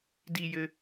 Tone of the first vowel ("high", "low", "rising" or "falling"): high